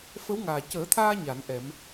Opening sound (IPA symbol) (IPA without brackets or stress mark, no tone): f